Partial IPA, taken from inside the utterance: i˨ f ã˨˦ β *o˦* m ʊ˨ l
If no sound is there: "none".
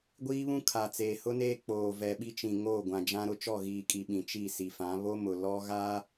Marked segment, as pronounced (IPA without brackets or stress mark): o˦